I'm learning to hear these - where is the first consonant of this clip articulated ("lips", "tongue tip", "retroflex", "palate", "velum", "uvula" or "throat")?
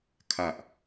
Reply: velum